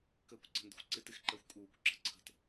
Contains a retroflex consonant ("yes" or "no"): no